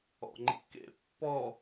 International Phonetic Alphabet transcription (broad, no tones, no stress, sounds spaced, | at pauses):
ɔ̰ ŋ͡ǃ ḭ k ḛ pː ɔ